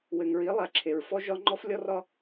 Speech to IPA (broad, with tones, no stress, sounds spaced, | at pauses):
w ɘ˨ ŋ ɹ i˨˦ lˠ a˨ ǁʰ e˨ ɹ f ɔ˦ ʒ ɒ˦ ŋ͡ǃ ɔ˦ f lʲ ɔ˦ r ɒ˦